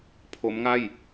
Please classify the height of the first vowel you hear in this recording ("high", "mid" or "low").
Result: mid